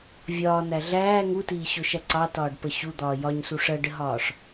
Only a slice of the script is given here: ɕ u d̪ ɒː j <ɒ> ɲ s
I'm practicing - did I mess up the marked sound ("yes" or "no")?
no